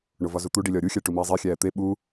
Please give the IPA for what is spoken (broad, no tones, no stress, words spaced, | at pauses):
ɳovɒzut̪u ɖilʲɒːɾʲu xʲæʈumiːzˤe xʲæːt̪e ɓu